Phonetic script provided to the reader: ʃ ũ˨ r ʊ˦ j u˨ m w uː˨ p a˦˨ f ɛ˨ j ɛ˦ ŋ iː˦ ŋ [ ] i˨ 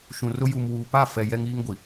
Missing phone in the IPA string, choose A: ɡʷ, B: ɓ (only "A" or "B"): A